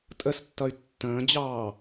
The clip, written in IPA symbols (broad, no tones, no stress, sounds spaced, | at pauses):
tʼ ə s tː ʌ y̯ tː ə̃ː d͡ʑ ɑː